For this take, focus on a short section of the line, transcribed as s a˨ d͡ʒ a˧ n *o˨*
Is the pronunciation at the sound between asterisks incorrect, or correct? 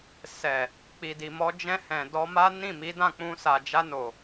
correct